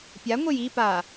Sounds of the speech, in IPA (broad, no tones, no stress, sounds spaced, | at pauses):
pʲ a ŋʷ e j i p a